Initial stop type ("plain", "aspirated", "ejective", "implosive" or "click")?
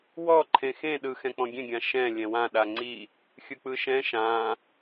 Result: click